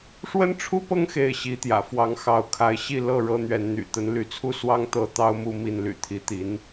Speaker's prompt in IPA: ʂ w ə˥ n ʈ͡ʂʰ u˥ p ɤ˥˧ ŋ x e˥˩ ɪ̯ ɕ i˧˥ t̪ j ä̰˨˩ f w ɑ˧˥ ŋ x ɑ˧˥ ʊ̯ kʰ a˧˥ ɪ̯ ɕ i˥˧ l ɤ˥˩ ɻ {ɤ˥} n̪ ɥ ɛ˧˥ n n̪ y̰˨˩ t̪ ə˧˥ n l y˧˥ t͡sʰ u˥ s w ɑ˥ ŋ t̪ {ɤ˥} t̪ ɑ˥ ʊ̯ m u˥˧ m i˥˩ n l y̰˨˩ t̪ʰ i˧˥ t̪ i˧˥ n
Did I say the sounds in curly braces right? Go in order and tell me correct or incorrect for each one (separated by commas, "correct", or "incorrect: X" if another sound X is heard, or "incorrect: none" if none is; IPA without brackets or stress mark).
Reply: correct, correct